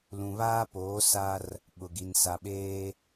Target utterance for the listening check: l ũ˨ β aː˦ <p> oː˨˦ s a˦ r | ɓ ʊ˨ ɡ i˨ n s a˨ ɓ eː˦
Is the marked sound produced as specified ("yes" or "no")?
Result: yes